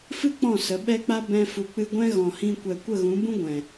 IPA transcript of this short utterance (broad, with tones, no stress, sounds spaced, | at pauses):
f ɨ˦ k͡p ɔ̃˦˨ s ə˨˦ ɓ ɛ˦ k͡p a˦ b ɛ̃˧ f u˨ k͡p ɨ˧ ɡʷ ɛ̃˦ ɣ ɔ̃˨ h ĩ˧ kʷ ɛ˨ kʷ ə˦˨ ɣ ũ˨˦ b ũ˦ ɡʷ ɛ̃˨